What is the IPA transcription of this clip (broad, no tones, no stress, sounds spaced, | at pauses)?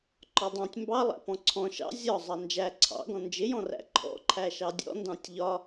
ǃ ɒ dˤ ɑ̃ tʲ m b ɑ lˠ æ̰ p ɔ̃ ǀʰ ɔ̃ ʃ ɑ̰ zʲ ɒ zˤ ɑ n d͡ʒ æ ǀʰ ɑ̰ ɡ ɔ̃ n d͡ʒ ɪ j ɔ̃ r æ̰ ǃʰ ɔ̰ ǃʰ æ ʃ ɑ dʲ ɔ̰ n d ɑ̃ tʲ ʎ ɒ